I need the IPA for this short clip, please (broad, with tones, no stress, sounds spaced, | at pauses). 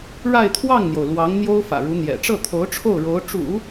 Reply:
ɻ a˥˧ ɪ̯ t̪ʰ w ɑ˥˩ ŋ n̪ j o˩ ʊ̯ l w ɑ˧˥ ŋ n̪ j o˥ ʊ̯ f ä̰˨˩ ɻ u˧˥ n̪ j ɛ̰˨˩ ʈ͡ʂ ɤ˥˩ t̪ʰ o˧˥ ʊ̯ ʈ͡ʂʰ o˥˩ ʊ̯ ɻ o˧˥ ʊ̯ ʈ͡ʂ ṵ˨˩˦